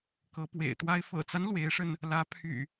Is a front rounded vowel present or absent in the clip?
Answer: present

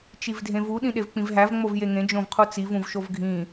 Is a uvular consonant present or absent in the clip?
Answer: present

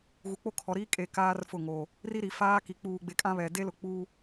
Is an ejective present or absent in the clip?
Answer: present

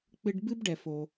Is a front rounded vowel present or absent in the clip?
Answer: absent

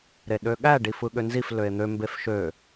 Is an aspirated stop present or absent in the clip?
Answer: absent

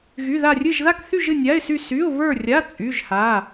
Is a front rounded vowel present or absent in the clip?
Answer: present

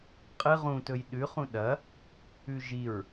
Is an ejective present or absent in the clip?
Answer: present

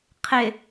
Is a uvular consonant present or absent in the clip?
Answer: present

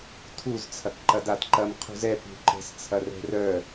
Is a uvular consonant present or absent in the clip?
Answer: present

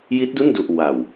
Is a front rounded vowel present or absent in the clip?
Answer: absent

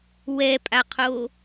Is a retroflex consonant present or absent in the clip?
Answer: absent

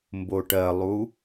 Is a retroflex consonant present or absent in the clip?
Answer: present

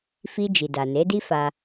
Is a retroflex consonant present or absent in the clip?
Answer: absent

